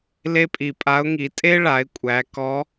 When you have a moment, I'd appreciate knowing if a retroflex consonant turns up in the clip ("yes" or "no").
yes